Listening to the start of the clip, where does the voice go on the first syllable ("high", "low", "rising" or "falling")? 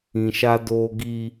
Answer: low